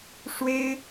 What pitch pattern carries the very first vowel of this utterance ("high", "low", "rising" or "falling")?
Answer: high